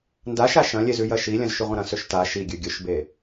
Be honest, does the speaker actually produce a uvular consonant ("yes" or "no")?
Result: yes